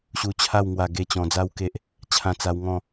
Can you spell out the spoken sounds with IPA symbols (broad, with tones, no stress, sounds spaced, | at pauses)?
ɕ u˧ t͡ɕʰ a˥˧ w ŋ w a˧ ɡ e˥˧ t͡ɕ ɔ̃˧ d͡z a˦ w k e˦ ʔ | t͡ɕʰ ã˧ t͡s a˧ w ŋ ɔ̃˥˧